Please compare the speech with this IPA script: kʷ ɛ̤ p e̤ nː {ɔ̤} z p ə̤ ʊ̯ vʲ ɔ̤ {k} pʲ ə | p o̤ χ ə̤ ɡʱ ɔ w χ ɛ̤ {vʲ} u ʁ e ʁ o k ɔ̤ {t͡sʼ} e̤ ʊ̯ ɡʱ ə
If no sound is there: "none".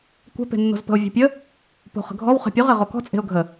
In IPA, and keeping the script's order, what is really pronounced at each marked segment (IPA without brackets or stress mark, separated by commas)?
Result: o̤, none, pʲ, t͡sʼ